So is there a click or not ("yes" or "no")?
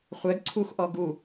yes